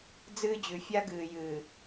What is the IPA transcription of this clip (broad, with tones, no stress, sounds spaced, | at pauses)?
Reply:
d͡z ɨː˦ d͡ʑ ʉ˨ fʲ a˦ ɡ ɨː˨ j ɨː˨